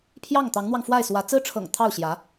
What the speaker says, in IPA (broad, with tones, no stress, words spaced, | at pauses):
pʰjɑ˥˩ŋ t̪ɑ˧˥ŋn̪wɑ˧ŋ fwa˥˩ɪ̯swä˧˥ t͡sɹ̩˥ʈ͡ʂʰɤ̰˨˩ŋ t̪ʰɑ˥˩ʊ̯ɕjä˧˥